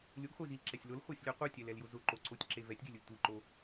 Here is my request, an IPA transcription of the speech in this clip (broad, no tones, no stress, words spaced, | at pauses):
lʲʊɡχʷezilǁɛsʲ lʊlχʷasʲlʲɛ qʷitʲɛlɛljʊ zʊǃoǀotʲǁe vɛtʲɡelʲʊlʲ tʷiǃo